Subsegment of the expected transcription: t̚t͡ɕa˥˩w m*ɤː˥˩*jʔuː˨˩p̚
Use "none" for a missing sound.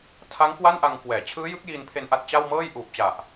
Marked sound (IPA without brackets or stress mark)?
ɤː˥˩